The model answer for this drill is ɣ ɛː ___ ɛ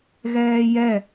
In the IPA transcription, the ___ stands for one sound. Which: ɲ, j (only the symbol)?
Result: j